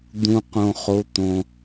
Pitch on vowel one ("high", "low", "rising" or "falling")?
low